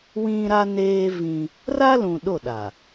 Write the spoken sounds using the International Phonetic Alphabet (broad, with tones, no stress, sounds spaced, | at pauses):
w ĩ˦ ɾ a˦ n eː˦ v ĩ˦ | r a˦ l ũ˨ ɗ o˦˨ ɗ a˨